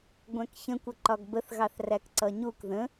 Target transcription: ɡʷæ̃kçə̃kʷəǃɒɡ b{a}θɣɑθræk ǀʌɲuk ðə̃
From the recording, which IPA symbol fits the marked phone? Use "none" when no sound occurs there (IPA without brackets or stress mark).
ə